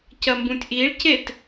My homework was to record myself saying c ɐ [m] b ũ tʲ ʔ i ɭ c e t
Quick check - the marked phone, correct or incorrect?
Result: correct